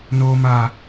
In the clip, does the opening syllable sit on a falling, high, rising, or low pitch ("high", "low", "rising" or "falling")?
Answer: low